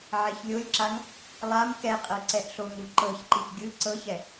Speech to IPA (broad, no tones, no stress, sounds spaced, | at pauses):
ʕ e ç lʲ o lʲ ǁ a ŋ | lˠ a m k ɛ qʼ ɤ ǀ ɛ ʔ ɬ o ŋ u ǃ ɤ ç ǃ i ʔ ɡʲ ɯ ǀ ɤ ç ɛ